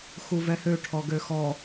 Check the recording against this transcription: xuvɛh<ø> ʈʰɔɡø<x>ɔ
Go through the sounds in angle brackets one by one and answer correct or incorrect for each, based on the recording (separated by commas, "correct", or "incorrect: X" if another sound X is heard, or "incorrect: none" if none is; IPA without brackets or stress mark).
correct, correct